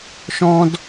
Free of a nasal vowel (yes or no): no